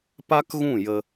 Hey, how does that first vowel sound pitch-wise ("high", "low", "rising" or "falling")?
high